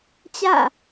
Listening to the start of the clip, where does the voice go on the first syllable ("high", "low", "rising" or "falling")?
falling